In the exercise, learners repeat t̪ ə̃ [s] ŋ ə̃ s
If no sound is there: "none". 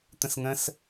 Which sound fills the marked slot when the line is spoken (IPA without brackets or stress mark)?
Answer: s